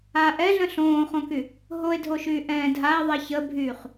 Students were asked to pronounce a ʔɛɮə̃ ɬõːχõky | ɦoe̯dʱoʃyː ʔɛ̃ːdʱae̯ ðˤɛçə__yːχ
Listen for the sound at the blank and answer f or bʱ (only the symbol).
bʱ